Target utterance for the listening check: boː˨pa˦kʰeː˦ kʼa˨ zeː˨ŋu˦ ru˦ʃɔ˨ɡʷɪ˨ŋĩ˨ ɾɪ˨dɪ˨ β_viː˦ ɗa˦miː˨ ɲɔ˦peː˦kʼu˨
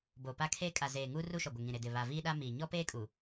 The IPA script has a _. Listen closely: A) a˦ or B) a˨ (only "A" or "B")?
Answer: B